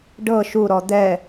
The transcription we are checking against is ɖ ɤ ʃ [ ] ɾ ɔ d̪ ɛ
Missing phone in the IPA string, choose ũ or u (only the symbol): u